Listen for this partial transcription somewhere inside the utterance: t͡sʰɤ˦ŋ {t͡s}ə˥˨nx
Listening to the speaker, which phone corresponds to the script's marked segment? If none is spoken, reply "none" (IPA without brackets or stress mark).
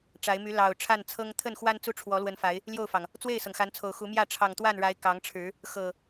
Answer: t̪ʰ